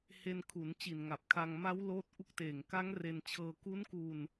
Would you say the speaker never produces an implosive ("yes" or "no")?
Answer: yes